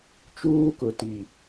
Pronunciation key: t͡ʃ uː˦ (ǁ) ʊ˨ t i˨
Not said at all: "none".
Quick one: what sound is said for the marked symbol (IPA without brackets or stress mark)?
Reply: k